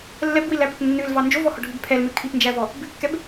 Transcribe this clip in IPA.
lːɛbwilæpœp nːʉlvɑ nd͡ʒovɔhɔɖʱʉb pʰɛlmø kʰipnd͡ʒævɔ | bʉkːɛb

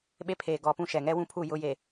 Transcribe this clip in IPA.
ɓe˦pʰeː˨ ɡɔ˨pũ˦ʃɛ˨ ŋɛ˦wũ˦pʰu˦˨ jʊ˦ je˨

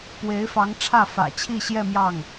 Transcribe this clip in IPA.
pwe˧˥ɪ̯fɑ˧˥ŋ ʈ͡ʂʰä˥˩fä̰˨˩t͡ɕʰi˥˧ɕjɛ˥˧ mjɑ˥˩ŋ

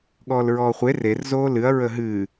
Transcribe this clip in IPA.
ɠɔːlɹɔːχʷe rerzoː lɨɐ̯ ɹəɦɨː

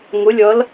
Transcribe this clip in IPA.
ŋʊ˩˧lʲʌ˩˧l

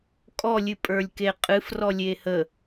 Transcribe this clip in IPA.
kʼɔ lʲɨpʼə˞lʲkeqʼɨf rɔlʲehə

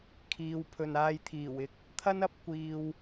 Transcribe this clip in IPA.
kʰiː˨wpʰɵ˨naː˧j t̪ʰiː˨˩wɪ˧k̚ | t̪ʰɐ˥nɐ˨˥p̚ kʷiː˨w

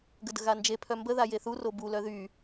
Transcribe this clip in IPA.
ɡədə̤ɣand͡ʒe pʰœmbə ðajeθu robu lœðy

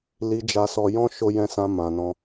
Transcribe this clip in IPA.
li˧d͡ʒa˧sɔ˧ jɔ̃˦ʃo˧jɛ̃˧sã˧ mã˧nɔ̃˦

